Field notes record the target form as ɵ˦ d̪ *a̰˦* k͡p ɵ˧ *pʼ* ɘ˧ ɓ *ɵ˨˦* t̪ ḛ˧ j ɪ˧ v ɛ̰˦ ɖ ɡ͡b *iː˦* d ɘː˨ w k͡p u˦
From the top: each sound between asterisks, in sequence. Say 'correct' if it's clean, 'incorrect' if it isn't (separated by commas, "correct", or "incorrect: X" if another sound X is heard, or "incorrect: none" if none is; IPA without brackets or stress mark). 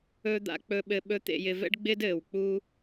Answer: correct, incorrect: ɓ, incorrect: ɵ˦, incorrect: ɪː˦